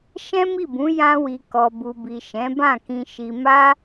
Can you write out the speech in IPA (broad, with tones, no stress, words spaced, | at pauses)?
ʃɛ̃˦mi˦˨bũ˨˦ jã˧wi˨ kɔ˨ bu˨bi˨ ʃɛ̃˨˦bã˦˨kĩ˧ ʃi˧ ma˦